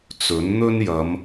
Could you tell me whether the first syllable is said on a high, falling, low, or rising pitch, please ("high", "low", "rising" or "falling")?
rising